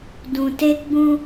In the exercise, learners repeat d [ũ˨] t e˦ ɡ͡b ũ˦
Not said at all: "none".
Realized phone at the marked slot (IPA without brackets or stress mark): ũ˨